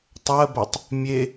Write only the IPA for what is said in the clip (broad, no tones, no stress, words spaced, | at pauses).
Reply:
tˤɜbɜtˤ | mʲe